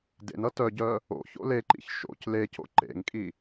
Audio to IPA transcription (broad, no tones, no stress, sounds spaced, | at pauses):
d ḛ n ʌ t œ ɟ œ | o̰ ç o̰ l e ǃ ḭ ç ʃ o̰ c l e c o̰ ǃ ḛ ŋ kʼ i